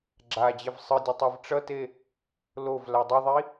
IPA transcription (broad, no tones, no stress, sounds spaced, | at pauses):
ɡ͡ǁ a d͡ʑ e v sˤ ɯ dʲ ʌ tˤ ɛ v ʈ͡ʂ ʌ t e | l o v l a dˤ ʌ ðˤ i